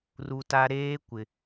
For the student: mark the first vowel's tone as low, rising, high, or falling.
high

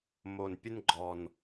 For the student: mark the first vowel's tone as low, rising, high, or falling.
low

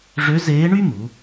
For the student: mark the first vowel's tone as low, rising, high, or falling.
rising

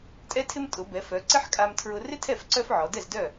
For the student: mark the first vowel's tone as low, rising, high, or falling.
high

